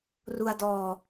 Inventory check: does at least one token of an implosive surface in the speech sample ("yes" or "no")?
no